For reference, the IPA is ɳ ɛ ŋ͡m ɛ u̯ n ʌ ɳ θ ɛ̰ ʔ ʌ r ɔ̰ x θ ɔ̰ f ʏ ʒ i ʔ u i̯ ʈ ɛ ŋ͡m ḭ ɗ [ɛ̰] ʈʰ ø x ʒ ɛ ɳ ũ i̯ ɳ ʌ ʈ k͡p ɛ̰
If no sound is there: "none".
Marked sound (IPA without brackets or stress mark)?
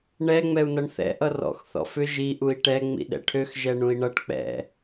ɛ̰